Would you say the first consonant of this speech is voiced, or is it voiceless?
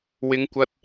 voiced